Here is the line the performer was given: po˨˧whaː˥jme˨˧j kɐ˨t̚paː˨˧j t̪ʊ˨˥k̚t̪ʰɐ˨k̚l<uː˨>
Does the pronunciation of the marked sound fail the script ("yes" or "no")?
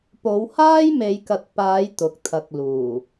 yes